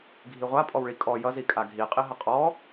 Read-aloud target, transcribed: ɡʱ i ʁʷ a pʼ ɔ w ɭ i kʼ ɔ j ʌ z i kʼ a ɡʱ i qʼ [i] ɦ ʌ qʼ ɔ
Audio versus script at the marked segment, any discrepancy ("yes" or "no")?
no